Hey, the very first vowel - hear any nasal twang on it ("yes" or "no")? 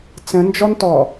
yes